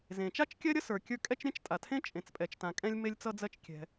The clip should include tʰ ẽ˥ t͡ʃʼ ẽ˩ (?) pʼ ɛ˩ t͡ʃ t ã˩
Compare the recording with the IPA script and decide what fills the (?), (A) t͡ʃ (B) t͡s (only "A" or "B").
B